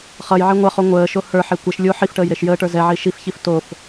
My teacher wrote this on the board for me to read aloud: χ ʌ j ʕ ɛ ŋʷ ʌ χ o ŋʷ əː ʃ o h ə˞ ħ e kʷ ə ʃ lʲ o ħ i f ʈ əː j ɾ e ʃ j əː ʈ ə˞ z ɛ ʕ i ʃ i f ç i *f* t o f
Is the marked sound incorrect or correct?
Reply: correct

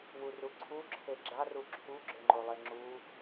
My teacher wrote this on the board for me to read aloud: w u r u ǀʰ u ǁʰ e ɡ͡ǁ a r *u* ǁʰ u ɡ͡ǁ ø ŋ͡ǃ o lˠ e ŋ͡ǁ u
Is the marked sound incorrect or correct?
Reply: correct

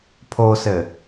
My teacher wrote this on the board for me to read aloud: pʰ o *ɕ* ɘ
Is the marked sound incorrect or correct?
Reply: incorrect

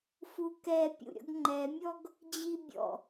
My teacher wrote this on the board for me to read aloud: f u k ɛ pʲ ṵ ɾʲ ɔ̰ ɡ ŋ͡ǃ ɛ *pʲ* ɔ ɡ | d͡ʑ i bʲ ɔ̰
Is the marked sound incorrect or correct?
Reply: incorrect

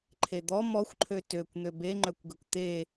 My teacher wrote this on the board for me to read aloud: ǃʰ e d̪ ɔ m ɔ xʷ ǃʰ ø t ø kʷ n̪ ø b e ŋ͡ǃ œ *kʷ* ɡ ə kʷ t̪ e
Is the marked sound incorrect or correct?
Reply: correct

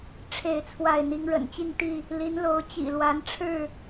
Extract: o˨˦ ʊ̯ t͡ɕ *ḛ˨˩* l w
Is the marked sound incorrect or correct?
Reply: incorrect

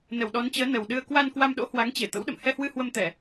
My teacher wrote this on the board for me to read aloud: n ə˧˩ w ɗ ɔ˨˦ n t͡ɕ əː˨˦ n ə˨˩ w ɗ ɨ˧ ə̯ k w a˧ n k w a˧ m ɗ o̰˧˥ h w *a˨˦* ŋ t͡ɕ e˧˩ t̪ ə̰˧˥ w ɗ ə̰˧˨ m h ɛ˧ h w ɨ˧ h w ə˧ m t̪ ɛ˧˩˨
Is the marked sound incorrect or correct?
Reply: correct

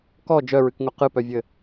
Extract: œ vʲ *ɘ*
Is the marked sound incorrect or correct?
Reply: correct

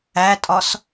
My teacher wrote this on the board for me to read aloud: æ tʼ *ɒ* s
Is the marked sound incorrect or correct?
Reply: correct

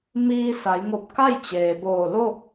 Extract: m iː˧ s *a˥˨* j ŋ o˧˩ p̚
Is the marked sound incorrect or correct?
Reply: incorrect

